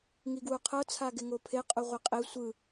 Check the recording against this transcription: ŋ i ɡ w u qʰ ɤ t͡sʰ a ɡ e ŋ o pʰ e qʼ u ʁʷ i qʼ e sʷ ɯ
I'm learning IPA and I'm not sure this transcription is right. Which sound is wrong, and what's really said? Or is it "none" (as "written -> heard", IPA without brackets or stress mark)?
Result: none